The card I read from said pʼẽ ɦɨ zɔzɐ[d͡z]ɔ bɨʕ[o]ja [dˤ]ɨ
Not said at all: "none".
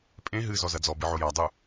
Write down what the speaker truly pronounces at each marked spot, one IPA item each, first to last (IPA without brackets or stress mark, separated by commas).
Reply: d͡z, o, dˤ